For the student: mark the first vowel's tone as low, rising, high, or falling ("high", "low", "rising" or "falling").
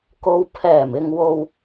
low